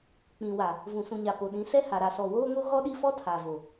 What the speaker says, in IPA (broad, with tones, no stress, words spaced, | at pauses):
k͡pĩ˨wa˨ | vũ˨sũ˨ɲa˨ po˨ɗĩ˨˦ sɛ˦ha˨ ɾa˨sɔ˨woː˦ŋo˦ ɣɔ˦ɗi˦fɔ˦ tʰa˨vo˨